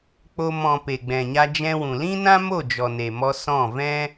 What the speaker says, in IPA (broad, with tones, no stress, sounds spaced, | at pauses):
k͡p o˧ m ɔ̃˨ p e˨ ɡ͡b ɛ̃˨ ɲ a˧ d͡ʒ ɛ̃˧ w ũ˨ l ĩ˦ n ã˦ m o˦˨ d͡ʒ ɔ˨ n e˨ m ɔ˧ s ɔ̃˦˨ v ɛ̃˦